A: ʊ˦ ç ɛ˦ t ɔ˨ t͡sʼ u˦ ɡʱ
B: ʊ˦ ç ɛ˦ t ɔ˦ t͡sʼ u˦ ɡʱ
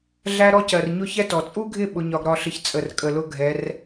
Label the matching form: A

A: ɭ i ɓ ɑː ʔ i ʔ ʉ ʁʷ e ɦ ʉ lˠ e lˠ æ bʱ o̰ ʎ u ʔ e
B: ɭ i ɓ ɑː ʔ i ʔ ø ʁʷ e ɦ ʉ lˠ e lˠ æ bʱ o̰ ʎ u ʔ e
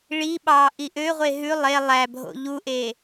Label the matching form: B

